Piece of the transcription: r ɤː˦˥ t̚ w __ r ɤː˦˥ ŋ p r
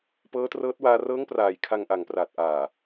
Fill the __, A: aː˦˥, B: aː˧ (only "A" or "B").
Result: B